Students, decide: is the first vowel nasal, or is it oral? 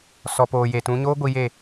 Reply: oral